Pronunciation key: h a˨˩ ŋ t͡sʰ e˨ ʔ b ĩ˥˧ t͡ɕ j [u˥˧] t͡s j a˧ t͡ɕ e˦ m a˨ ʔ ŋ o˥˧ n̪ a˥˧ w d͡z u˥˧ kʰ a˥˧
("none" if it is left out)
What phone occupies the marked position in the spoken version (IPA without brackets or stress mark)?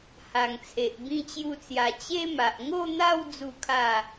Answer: u˥˧